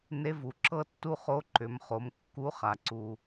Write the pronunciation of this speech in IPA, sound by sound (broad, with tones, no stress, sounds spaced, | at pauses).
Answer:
n e˧˥ v u˩ ǁ ɤ˥ tː u˥ χ o˧˥ ǃ ʏ˩˧ m χ o˩˧ m kː u˧˥ χ a˩ ǀ u˩